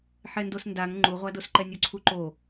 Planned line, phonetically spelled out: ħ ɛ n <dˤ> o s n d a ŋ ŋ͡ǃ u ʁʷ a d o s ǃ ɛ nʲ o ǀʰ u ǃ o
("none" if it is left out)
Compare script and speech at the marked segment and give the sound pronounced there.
d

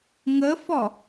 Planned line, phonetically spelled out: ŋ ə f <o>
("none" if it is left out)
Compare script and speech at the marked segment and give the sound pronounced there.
ɔ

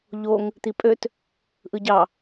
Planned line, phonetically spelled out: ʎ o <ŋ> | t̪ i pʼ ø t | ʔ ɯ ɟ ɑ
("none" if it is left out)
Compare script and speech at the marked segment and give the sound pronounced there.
ŋ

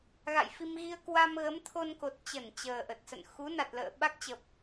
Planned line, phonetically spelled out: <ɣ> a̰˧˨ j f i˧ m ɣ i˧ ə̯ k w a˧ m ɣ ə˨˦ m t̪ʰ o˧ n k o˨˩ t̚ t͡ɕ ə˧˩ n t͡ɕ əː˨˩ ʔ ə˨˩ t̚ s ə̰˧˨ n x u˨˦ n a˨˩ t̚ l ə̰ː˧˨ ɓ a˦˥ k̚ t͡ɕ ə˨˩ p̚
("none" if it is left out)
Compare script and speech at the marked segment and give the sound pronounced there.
ɣ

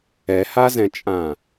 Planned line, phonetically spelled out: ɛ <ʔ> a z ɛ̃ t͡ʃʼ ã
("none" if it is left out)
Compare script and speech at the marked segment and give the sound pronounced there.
h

